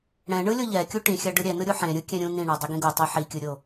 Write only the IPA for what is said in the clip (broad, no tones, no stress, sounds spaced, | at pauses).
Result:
ɽ ɛ̃ ɳ ɯ lʲ o ʎ ɛ kʲ u ʈ ĩ xʲ a ɖ ɯ ɾʲ ɛ n ɯ ɾʲ u ħ ẽ ɾʲ ɯ kʲ ɛ̃ ɾʲ ũ n ĩ ɳ ɔ dˤ i ɡ ĩ ɡ o tˤ i ħ i kʲ ɯ ɾʲ o